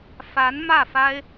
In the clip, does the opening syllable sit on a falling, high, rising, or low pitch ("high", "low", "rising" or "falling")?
rising